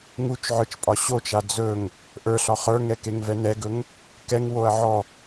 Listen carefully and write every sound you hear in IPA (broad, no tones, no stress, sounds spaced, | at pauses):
ŋ u t͡ʃ ʕ ə˞ t͡ʃ pʼ ɒ ɕ o t͡ʃ a d͡z ɵ ŋ | ʔ ə˞ ɬ ɒ χ ə˞ ŋ ɛ k e ŋ v ɛ n ɛ ɡ ɵ ŋ | k ɛ ŋ w o ɐ̯ ʕ ɔ